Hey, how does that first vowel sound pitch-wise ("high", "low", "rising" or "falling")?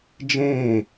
falling